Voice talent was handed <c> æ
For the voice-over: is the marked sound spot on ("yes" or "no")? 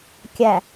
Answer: no